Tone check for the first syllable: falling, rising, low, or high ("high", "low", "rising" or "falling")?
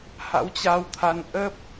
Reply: rising